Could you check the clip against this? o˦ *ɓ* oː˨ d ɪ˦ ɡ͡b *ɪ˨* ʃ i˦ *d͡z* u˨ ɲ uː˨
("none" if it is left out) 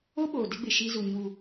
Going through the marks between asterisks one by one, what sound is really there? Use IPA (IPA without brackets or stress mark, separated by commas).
ɓ, ɪ˨, z